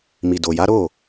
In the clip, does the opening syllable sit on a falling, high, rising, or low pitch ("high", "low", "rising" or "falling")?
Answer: low